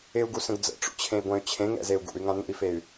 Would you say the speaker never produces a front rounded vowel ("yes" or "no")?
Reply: no